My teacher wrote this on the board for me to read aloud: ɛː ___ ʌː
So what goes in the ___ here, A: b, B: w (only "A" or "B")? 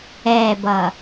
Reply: A